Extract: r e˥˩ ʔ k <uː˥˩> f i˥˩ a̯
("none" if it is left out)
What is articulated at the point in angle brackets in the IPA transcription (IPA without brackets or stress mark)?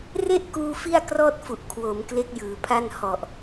uː˧